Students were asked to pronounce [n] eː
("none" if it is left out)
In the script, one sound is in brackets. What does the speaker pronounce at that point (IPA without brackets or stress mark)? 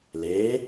l